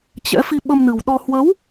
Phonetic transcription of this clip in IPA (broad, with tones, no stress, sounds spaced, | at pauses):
t͡ɕ ɛ̰˧˥ f i˧ ɓ ə˧ m n ɨ˨˩ w ɗ ɔ˧ h w ə˨˦ w